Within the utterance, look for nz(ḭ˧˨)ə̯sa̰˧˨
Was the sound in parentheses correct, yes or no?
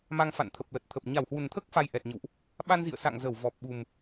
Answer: yes